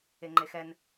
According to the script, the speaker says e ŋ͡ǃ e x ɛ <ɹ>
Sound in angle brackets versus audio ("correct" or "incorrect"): incorrect